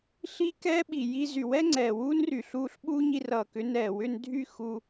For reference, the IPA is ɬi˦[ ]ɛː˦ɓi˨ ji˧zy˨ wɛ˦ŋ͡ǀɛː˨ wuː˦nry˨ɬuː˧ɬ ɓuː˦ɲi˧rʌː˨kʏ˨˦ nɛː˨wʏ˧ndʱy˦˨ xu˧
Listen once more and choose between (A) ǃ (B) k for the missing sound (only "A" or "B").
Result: B